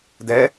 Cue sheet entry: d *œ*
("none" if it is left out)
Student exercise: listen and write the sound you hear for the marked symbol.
ɛ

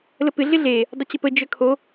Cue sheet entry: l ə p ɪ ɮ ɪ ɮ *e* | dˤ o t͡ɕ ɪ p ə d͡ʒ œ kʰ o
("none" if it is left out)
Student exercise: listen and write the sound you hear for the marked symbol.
e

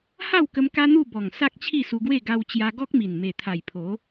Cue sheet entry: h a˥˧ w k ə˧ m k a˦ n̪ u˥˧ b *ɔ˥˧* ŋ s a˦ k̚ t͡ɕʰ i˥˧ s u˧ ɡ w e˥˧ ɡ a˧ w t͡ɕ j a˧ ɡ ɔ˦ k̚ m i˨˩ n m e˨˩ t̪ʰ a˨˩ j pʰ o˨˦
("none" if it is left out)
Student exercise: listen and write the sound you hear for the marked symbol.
ɔ˨˩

